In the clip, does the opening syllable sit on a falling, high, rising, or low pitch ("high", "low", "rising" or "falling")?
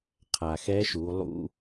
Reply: low